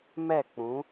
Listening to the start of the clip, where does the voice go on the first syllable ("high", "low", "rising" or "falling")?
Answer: falling